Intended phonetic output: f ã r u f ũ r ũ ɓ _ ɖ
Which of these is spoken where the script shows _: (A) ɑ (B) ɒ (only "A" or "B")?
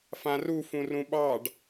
A